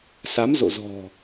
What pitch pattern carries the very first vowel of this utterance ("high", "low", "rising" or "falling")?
rising